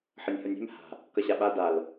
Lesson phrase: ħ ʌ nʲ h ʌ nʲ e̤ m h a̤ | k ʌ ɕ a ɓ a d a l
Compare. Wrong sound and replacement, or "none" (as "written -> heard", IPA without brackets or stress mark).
none